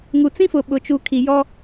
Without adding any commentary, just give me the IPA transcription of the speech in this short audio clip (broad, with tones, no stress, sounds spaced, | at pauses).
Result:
ŋ u˨ t͡s ĩ˦ f ʊ˨ ɓ ʊ˨ t͡ʃ u˨ kʰ i˨ j ɔ˦